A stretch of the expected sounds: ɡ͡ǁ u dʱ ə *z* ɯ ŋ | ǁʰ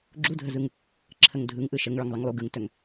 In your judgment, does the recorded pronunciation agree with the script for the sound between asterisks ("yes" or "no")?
yes